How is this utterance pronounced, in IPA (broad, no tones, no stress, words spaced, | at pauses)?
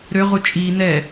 ɾøʁu t͡ʃʼi nɛ